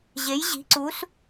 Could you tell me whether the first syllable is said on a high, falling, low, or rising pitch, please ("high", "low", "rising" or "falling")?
rising